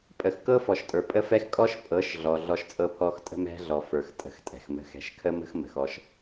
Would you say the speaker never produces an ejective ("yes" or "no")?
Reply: no